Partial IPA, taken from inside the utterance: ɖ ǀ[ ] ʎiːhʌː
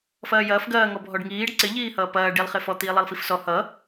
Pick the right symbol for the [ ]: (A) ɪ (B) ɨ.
A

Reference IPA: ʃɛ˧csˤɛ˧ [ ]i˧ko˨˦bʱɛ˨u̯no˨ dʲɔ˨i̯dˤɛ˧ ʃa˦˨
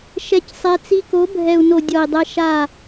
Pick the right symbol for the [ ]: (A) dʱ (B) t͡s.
B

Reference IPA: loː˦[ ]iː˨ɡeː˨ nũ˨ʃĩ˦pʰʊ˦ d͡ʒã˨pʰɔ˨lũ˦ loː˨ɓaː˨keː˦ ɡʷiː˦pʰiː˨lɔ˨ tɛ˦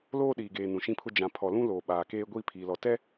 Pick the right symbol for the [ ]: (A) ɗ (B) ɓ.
A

